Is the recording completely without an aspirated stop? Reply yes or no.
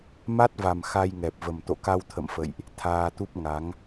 no